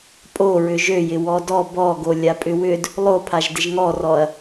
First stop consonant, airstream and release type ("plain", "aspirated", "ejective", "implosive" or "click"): ejective